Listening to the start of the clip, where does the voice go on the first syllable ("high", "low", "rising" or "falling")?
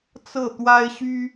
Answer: falling